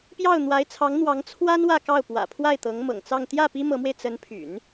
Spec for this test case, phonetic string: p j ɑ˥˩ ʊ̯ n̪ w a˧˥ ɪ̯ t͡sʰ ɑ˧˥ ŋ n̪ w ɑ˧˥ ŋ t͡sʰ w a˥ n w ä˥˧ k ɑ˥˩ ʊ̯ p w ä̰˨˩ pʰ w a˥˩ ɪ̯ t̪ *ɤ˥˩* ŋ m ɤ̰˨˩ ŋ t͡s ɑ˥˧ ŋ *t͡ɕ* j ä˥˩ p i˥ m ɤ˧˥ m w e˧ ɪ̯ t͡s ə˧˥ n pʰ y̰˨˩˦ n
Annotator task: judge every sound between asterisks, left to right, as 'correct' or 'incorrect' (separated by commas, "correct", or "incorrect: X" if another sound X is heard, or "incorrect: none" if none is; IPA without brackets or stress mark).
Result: incorrect: ɤ˧˥, incorrect: t̪